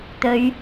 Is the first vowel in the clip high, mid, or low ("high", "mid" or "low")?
mid